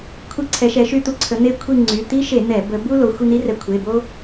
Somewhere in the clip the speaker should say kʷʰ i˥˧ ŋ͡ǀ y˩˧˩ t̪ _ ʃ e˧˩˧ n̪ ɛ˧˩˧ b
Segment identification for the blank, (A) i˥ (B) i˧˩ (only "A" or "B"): A